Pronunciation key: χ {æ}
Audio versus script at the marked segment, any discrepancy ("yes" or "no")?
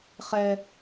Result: yes